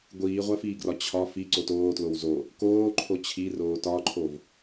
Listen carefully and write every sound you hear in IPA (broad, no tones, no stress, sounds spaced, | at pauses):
ɡʷ iː ʁʷ æ f iː ɡ r ɒ t͡ɕʰ ɒ f i ǀ o t oː t l o w z o | k oː ǃʰ o t͡ɕʰ i r oː t ɒ ǃʰ o v